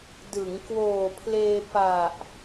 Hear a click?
no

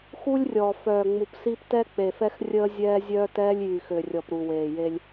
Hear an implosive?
no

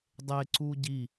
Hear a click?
yes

